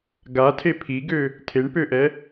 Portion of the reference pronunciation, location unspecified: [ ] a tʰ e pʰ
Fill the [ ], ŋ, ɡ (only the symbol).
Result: ɡ